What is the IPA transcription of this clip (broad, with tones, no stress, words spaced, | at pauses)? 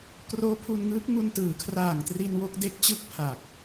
kroː˦˥pʰu˧nŋɯː˦˥k̚ŋu˧n tɯː˩˦kʰraː˨˩ŋ tri˧n wo˦˥k̚de˦˥k̚t͡ɕɯ˥˩k̚ pʰaː˨˩k̚